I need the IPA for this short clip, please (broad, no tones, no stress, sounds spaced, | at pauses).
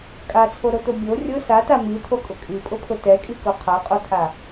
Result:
kʼ a t͡sʰ o ɾ o t̪ o bʲ o rʲ ʊ s a t a m i t̪ʰ o kʼ ʊ kʼ i pʼ ʊ pʰ ʊ t ɛ kʼ i k o qʰ a qʼ o t̪ʰ a